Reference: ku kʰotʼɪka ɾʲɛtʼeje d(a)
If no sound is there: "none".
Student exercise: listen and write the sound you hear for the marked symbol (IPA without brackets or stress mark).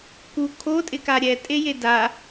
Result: a